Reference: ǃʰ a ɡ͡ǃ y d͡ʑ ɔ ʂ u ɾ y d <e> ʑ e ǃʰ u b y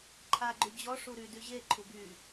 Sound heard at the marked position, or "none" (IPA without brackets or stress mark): y